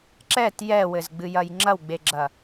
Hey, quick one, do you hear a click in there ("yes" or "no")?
yes